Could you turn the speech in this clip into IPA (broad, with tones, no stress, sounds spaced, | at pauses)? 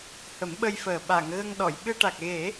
h ə˨˩˦ m ɓ ə˧ j f əː˨˩ ɓ a˨˩˨ ŋ ɣ ə˧ ŋ ɗ ɔ˨˩˨ j ɓ ɨ˧ ʈ a˨˩ k̚ ɣ e˨˩˦